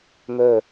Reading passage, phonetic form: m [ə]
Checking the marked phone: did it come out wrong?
yes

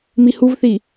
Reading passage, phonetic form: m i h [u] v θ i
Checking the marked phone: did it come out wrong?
no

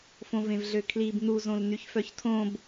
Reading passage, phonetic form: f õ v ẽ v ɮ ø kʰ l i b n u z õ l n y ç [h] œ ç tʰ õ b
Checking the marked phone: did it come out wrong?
yes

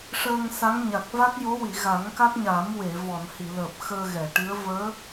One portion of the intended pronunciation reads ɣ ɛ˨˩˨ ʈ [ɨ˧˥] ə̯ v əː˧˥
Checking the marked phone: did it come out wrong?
no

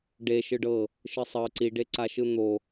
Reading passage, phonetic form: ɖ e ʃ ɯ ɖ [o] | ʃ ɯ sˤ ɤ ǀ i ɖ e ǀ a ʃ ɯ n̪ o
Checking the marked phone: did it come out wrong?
yes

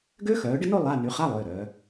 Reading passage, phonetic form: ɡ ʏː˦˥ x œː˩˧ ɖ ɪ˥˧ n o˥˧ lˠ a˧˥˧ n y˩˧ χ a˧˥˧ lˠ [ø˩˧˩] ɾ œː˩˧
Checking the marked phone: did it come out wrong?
no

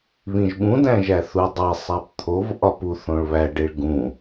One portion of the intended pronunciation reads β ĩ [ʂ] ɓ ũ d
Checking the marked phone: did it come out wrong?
yes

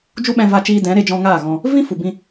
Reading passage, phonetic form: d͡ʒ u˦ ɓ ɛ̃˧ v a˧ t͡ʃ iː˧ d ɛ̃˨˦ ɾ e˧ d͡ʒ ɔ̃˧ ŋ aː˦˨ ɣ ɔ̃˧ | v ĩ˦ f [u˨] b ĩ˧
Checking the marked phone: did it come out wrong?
no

